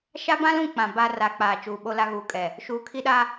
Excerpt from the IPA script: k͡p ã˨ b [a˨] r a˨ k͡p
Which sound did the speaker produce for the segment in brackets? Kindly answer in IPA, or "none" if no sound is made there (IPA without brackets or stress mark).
a˨